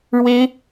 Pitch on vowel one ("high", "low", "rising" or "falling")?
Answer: high